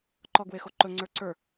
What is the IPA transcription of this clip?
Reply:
ǃ ɔ ɡ w e x o ǃ ɵ ŋ͡ǀ ə˞ ǀ ə˞

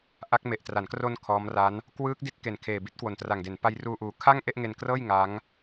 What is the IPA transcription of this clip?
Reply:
ʔ a˦˥ k̚ m e˨˩ ʔ t r a˩˦ n k r o˧ n kʰ ɔː˦˥ m r a˦˥ n | k w ɯː˦˥ k̚ d i˦˥ t̚ k e˨˩ n kʰ eː˨˩ b i˦˥ t̚ k w o˨˩ n t r a˨˩ ŋ d e˩˦ n p a˦˥ j r uː˧ ʔ uː˨˩ kʰ a˥˩ ŋ ʔ e˥˩ ʔ ŋ e˧ n k r ɤː˥˩ j ŋ a˦˥ ŋ

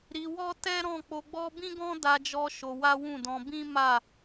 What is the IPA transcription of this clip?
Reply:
ɾ i˧ w ɔ˦ t ɛ˦ ɾ ɔ̃˦˨ k͡p o˧ ɡ͡b ɔ˦ b ĩ˦ ɡ ɔ̃˦ d a˧ d͡ʒ ɔ˧ ʃ o˧ w a˦ w ũ˦˨ d ɔ̃˧ b ĩ˦ m a˦˨

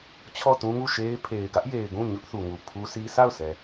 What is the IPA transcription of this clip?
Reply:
t͡ɕʰ ɔ˦˨ t ũ˦ ŋ u˦˨ ʃ e˦ ɪ̯ pʰ e˨ ɪ̯ ɡ ä˦ ʔ j e˨ ɪ̯ ɡ ũ˦˨ ɲ ʊ˦ ʔ θ u˨ ŋ u˨ pʰ u˦ sʰ i˦ s a˦˨ ʊ̯ s ɛ˨

